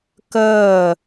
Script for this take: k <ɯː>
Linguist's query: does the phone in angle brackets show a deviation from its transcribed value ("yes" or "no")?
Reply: yes